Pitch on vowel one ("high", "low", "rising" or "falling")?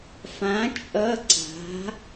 rising